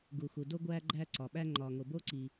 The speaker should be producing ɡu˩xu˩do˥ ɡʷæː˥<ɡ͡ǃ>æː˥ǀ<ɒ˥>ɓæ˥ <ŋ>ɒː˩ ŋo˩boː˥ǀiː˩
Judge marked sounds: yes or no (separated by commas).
yes, no, no